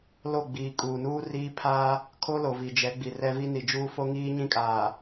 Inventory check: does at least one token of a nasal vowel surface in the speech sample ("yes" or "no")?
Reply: yes